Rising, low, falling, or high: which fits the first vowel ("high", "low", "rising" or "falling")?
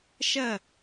falling